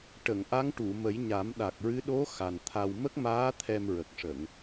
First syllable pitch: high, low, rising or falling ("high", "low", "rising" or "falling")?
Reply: low